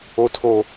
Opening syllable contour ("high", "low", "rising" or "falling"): high